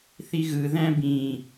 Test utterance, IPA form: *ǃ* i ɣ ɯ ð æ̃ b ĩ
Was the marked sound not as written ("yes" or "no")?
yes